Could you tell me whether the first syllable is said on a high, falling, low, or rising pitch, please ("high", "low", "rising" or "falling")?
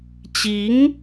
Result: rising